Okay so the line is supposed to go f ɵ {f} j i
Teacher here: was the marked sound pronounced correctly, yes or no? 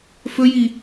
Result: no